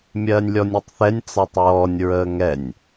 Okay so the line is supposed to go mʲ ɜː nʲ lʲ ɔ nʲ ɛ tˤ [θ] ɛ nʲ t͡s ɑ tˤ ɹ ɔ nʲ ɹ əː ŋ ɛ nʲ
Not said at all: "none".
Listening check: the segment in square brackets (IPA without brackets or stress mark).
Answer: θ